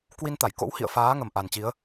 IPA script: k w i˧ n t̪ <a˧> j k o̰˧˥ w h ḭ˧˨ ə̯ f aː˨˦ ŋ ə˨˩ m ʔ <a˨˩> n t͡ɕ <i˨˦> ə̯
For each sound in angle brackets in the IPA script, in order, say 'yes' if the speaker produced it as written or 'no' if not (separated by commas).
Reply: no, yes, yes